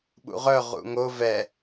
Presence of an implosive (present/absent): present